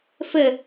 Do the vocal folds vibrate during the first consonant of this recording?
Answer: no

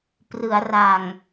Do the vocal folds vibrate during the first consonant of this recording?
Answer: no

